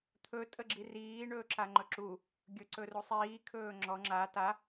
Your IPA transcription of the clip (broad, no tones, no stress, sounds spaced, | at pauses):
t̪ʰ ɵ tʼ ə ɡ͡ǁ i r iː ɳ ɵː ǁ a ŋ͡ǃ ɵ ǁ u | ɡʲ ɵ ǀ ɵ r u sˤ iː kʰ ɵː ŋ͡ǁ ɔ ŋ͡ǁ a t a